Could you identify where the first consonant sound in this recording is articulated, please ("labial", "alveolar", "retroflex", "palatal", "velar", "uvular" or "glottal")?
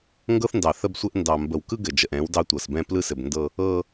velar